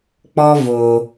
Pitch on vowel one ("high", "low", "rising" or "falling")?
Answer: high